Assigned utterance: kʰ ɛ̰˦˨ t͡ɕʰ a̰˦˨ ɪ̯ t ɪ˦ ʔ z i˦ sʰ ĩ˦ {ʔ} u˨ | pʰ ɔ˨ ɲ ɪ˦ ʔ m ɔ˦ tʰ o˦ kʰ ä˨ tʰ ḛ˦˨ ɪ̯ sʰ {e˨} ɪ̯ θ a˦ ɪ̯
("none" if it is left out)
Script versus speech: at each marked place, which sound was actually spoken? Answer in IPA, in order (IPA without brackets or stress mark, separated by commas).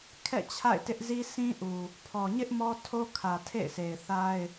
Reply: ʔ, e˨